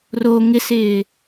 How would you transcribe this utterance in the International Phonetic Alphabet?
r o ŋ ɪ s ɪː

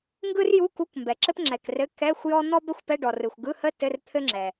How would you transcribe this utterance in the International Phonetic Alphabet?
ŋ ɡ ɯ˥ r j u˧˥˧ k u˧˥˧ k m b ɛ˩ ǁ ɘ˥ p ŋ͡ǁ ɛ˩ k r ɘ˧˥˧ k ɛ˧˥˧ xʷ j ɔ˥ n̪ ɔ˥ b ɛ˥ xʷ p ɛ˧˥˧ ɖ ɔ˩ r ɯ˩ xʷ ɡ ɯ˧˥˧ h ə˥ t ɘ˧˥˧ r t̪ʰ ɘ˥ ŋ͡ǁ ɛ˩

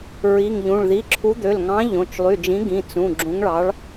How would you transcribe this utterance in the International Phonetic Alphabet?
ɹ i˩˧˩ ŋ ʎ ũ˩˧˩ ɭ ð i˩˧˩ ǁʰ u˨˥ d̪ ø˩˧˩ l ŋ ɑ̃˨˥ ʎ õ˩˧˩ t͡ʃ lˠ y˩˧˩ d͡ʒ ĩ˨˥ ɡ ĩ˩˧˩ t͡s ũ˩˧˩ ɡ͡ǁ ũ˨˥ ŋ ɭ ɑ˨˥ ɭ

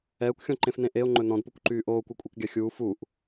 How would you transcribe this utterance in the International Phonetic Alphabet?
ɛː kʷ xʲ ɔ̃ ǃ ẽ f n ẽ ʔ e o̯ ŋ͡ǃ ɵ n ɔ̃ d p u kʷ ǃ yː ʔ oː kʷ ɛ kʷʼ ɛ k ɡʲ a xʲ uː f u ʔ

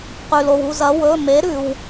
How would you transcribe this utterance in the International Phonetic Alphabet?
q ʉ˩ l o˩ w u˥˨ z ɐ˩˥ w ɵ˩˧˩ m e˩˥ ɾ ʉ˩ w

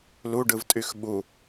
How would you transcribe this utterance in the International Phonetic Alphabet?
l u ɖ ɯ v tʼ y x ɓ u

